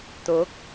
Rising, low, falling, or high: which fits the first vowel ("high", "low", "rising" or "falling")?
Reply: rising